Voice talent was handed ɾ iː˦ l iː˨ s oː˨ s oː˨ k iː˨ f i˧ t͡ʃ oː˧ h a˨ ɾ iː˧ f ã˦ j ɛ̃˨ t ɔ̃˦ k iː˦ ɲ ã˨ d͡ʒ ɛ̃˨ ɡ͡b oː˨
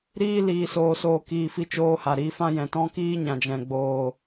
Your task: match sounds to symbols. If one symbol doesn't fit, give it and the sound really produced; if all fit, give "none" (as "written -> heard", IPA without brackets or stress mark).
none